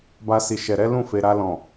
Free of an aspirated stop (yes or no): yes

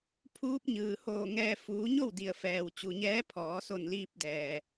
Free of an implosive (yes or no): yes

